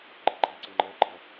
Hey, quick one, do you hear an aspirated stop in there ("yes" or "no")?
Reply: no